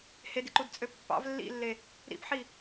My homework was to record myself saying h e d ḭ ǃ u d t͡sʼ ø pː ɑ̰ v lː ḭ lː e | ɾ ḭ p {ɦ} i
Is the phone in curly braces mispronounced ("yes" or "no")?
yes